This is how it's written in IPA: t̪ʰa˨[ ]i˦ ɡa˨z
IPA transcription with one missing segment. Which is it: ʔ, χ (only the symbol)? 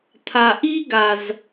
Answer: ʔ